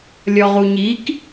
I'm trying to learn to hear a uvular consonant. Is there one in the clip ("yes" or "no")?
yes